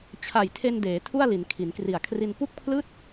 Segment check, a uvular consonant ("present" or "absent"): absent